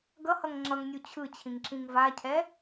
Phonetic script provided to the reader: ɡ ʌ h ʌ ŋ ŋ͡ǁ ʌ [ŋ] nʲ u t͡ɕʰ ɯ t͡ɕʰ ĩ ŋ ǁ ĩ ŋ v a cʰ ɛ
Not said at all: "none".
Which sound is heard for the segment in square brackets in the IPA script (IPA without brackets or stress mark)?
ŋ